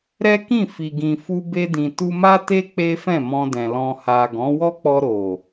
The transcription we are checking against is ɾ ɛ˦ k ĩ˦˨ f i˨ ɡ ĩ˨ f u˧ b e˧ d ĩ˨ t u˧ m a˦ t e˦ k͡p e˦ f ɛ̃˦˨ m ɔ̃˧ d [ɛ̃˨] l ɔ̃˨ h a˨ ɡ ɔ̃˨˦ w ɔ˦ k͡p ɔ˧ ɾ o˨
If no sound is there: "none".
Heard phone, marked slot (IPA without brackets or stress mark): ɛ̃˨